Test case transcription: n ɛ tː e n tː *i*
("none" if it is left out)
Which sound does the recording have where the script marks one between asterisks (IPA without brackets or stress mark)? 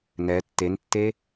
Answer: e